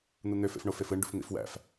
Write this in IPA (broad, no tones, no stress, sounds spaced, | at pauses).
n̪ u n̪ ø f ḛ f ɳ o f e f ɯ ɳ ɖ ṵ f n̪ ḭ f w æ̰ f